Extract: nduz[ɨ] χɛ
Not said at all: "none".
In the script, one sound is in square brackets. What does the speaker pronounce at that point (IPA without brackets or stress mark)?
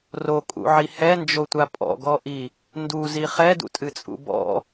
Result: i